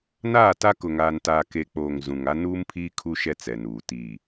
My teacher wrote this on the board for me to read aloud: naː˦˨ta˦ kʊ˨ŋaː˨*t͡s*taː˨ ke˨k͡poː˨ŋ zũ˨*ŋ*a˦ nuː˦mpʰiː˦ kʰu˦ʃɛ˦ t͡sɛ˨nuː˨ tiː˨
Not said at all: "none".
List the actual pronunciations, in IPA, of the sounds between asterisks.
n, ŋ

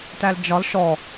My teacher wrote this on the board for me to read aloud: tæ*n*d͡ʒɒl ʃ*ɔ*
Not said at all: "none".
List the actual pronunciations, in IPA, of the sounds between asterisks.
l, ɔ

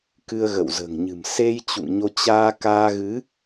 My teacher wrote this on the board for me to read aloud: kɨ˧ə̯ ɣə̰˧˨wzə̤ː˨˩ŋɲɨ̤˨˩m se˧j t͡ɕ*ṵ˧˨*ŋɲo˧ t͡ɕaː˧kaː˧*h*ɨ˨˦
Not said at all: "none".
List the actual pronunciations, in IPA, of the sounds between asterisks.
ṵ˧˨, ɣ

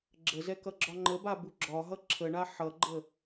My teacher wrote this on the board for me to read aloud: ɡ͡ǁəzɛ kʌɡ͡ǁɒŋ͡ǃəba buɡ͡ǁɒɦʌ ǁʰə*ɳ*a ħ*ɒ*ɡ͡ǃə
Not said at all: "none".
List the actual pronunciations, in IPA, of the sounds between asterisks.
ɳ, ʌ

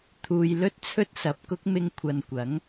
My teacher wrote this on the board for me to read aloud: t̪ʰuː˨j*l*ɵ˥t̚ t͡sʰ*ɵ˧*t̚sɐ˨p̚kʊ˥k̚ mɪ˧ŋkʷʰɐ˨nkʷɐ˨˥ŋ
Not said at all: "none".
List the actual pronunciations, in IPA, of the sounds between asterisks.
l, ɵ˥

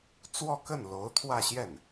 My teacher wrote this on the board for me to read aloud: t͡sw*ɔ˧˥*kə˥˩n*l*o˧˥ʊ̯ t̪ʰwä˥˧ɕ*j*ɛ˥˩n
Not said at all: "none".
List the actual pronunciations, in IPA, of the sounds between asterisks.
ɔ˥˧, l, j

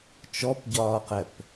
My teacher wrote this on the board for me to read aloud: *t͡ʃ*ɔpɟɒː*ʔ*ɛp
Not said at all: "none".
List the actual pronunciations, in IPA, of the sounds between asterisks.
t͡ʃ, q

